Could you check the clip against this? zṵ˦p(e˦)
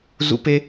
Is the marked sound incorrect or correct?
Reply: correct